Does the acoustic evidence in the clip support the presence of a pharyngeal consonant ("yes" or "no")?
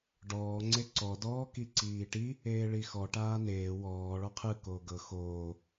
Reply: no